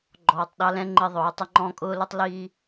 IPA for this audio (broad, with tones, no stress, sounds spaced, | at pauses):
ɡ͡ǃ ɔː˨ tˤ ɗ ɑ˧ l ɛ̃˧ ŋ͡ǃ ɪ˧ ðˤ ʊː˨˦ tˤ ɪ˧ ŋ͡ǃ ɔ̃˦˨ kʼ ʊː˦ l ʊ˦ tˤ l iː˧